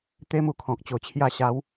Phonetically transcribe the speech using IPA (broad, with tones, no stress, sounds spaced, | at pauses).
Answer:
t̪ e˦ m u˧ kʰ ɔ̃˨ k̚ t͡ɕ o˨˩ t͡ɕʰ j a˧ ɕ a˨˦ w